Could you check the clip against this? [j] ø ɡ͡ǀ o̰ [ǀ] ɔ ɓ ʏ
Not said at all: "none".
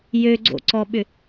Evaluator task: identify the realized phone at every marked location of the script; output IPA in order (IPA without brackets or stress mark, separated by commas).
j, ǀ